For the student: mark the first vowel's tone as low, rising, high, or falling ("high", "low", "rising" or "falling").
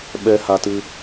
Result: high